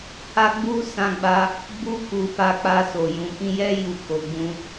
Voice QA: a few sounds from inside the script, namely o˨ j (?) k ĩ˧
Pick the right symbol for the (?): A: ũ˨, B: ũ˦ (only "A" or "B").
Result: A